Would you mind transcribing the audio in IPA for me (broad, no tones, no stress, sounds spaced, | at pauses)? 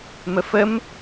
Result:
m ə f ə m